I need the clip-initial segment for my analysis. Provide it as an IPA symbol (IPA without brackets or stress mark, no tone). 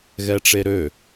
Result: ɣ